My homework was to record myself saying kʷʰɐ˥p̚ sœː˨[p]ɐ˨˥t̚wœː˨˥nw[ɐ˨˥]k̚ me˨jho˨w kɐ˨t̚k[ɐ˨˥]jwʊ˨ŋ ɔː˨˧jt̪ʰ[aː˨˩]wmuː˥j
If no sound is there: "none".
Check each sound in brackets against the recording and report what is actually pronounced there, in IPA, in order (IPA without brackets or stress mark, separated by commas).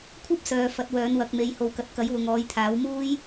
f, ɐ˨˥, ɐ˨˥, aː˨˥